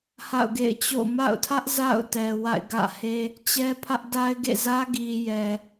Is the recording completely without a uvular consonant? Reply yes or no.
yes